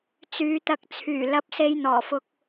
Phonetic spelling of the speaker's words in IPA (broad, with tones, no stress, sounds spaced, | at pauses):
t͡s yː˨˥ t̪ ɐ˧ k̚ t͡sʰ yː˨˩ l ɐ˧ p̚ s e˧ j n̪ ɔː˨˩ f ʊ˧ k̚